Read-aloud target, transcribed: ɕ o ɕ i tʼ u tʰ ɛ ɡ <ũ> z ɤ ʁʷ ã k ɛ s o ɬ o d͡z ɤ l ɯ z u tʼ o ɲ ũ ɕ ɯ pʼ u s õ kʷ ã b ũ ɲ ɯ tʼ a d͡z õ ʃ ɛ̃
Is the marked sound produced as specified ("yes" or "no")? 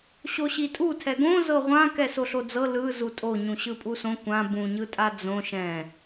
no